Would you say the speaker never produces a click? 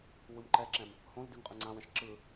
no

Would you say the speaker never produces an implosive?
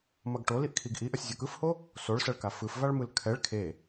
yes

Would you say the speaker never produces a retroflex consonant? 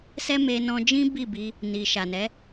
yes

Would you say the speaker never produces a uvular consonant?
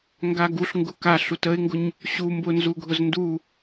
yes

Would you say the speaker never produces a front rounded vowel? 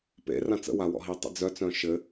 no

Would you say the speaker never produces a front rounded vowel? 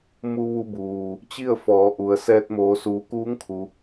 yes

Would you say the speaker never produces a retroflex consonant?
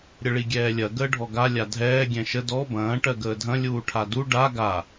no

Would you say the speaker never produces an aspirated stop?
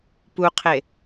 no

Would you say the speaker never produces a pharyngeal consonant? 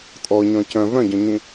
yes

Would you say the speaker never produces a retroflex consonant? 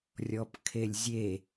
yes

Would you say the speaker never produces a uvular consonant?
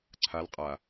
no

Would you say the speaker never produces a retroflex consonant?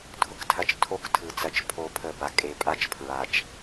yes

